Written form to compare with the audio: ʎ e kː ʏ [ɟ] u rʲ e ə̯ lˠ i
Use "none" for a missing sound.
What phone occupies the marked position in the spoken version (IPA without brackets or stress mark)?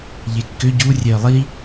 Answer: ɟ